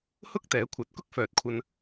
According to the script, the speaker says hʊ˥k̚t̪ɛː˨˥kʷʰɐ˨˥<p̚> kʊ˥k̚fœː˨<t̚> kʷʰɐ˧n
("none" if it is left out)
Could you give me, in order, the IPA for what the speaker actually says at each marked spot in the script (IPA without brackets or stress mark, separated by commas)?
t̚, t̚